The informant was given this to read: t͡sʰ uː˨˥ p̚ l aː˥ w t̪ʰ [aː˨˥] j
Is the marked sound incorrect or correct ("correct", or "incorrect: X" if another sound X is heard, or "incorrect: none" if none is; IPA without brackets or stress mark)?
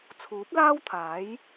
correct